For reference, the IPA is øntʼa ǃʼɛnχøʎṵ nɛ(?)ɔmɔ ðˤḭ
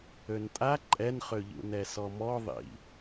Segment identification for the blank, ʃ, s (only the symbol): s